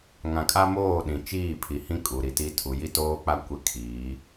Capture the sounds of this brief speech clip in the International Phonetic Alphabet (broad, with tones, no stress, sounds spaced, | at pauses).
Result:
ŋ ã˨ kʼ a˦ m oː˦˨ ɗ ĩ˨ t͡ʃ iː˦˨ pʰ i˨ h ĩ˦ kʼ u˨ ɾ i˨ t i˦ tʰ u˨ j i˦ t oː˦ k͡p a˦ kʷ ɪ˦˨ kʰ iː˨˦